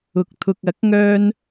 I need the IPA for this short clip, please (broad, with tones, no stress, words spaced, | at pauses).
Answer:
ʊ˨k̚t̪ʰʊ˨k̚ɐ˨˥k̚ŋœː˧n